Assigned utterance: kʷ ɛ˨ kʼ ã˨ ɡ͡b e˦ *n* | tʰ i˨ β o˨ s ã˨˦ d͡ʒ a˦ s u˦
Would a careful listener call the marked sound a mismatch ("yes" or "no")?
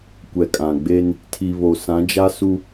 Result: no